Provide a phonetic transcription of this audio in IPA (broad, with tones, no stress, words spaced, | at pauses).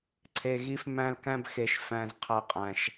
ǀʰe˧ɣi˦f mæ̃˧lkæ̃˧bxe˨ʃ fæ̃˦z qʰæ˦ qʼæ̃˧ʃ